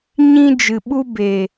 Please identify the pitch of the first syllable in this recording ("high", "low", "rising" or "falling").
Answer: high